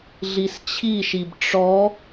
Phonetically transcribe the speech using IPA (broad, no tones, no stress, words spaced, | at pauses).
ɮist͡ɕʰiʃib ʈ͡ʂɔ